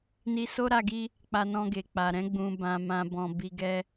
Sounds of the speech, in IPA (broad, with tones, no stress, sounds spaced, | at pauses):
n i˧ s o˦ ɾ a˧ ɡ i˦ | k͡p a˧ n ɔ̃˧ ɡ e˨ k͡p a˨ ɾ ɛ̃˨˦ ɡ͡b ũ˧ b ã˧ m ã˧ b ɔ̃˧ b i˧ ɡ ɛ˦